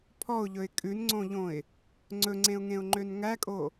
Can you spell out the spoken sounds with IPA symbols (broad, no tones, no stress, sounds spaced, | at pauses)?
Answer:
pʰ ɔ ʊ̯ ʎ ɵ ɪ̯ kʼ ʉ n ŋ͡ǀ õ ʎ õ ɪ̯ | ŋ͡ǀ ɵ ŋ͡ǀ ẽ ʊ̯ ŋ ẽ ʊ̯ ŋ͡ǃ ø n ŋ æ kʼ o